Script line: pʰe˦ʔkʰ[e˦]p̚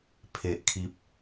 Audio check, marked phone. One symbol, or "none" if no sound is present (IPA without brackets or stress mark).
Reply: i˦